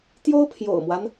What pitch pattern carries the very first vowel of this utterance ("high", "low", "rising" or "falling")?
high